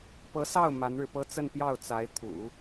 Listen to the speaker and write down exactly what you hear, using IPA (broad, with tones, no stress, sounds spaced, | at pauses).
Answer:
p ɤ˧˥ s ɑ˥˩ ʊ̯ m a˧˥ n ɻ ɻ̩˧ p ɤ˥ t͡s ə˥˧ n p j ɑ˥˩ ʊ̯ t͡s a˧˥ ɪ̯ t̪ʰ ṵ˨˩˦